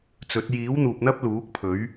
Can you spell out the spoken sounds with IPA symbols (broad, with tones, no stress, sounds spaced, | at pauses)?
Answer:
t͡s ɵ˨˥ t̚ j iː˨˥ w n̪ uː˨ p̚ n̪ ɐ˥ p̚ l uː˨˥ k̚ pʰ ɵ˨˥ ɥ